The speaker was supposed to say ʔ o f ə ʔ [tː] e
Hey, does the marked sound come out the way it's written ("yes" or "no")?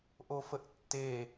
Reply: yes